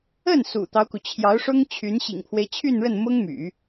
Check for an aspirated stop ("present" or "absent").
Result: present